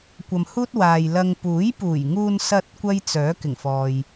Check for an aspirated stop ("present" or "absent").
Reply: absent